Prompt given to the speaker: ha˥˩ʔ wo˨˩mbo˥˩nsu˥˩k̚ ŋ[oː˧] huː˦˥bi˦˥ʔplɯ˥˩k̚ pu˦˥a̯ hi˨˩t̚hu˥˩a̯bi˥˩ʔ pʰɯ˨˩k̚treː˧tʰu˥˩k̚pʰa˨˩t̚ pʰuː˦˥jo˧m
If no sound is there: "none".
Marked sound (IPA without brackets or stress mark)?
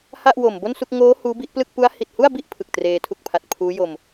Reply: oː˦˥